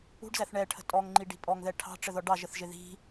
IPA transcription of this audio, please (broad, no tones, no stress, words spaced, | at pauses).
ṳɖzæθ ɳɛʈʰə̤ tʼɔŋŋ͡ǃiɖi̤ pʼɔŋðɛ ʈʰɑ̤ʈ͡ʂəðɔ ɖɑʒəθʒɪ ði̤